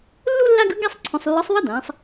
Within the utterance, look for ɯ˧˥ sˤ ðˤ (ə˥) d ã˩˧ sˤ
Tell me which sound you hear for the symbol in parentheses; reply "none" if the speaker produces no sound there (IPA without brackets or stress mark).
ʌ˥